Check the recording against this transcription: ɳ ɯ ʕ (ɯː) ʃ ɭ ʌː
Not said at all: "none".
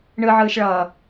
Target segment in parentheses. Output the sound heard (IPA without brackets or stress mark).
ɯː